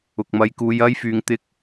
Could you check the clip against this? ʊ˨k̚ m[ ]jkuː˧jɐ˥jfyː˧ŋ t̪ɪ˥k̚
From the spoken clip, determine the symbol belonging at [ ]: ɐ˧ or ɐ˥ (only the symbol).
ɐ˧